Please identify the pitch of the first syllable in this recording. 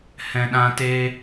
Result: low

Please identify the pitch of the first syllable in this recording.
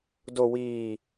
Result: low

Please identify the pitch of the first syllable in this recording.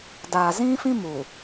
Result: low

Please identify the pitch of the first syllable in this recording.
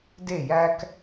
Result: falling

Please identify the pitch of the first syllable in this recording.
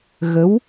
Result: rising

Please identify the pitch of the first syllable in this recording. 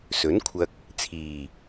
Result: rising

